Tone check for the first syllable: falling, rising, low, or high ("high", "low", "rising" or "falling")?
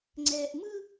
low